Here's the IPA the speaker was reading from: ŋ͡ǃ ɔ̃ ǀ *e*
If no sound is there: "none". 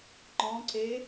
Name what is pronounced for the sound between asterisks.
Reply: e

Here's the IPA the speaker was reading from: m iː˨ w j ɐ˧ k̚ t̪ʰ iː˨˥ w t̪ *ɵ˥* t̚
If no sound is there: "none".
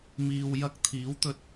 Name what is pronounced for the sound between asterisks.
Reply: ɵ˧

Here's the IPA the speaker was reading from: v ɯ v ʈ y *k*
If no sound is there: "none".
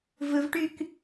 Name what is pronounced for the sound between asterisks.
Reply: k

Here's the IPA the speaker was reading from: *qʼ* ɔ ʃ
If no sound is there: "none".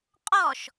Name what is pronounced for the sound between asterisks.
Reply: qʼ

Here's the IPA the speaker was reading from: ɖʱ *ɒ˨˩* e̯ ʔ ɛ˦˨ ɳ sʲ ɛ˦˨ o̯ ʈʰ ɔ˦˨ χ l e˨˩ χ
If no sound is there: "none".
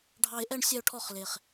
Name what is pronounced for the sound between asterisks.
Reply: ɑ˨˩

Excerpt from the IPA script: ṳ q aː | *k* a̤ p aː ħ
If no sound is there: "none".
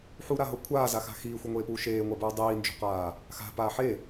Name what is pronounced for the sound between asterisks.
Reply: x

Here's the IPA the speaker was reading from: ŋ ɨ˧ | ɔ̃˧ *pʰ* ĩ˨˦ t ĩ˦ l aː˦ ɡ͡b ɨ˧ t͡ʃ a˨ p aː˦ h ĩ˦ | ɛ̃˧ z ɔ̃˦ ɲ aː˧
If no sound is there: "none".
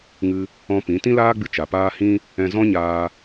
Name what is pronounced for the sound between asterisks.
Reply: p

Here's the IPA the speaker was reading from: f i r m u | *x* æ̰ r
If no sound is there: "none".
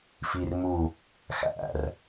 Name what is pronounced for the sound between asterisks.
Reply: x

